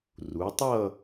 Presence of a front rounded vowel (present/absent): absent